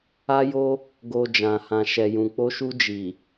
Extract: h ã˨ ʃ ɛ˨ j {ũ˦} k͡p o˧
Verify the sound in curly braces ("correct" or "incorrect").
incorrect